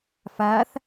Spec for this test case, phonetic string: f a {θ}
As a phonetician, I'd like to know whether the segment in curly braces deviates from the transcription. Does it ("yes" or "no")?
no